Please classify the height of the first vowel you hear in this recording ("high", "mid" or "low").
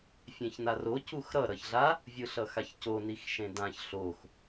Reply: mid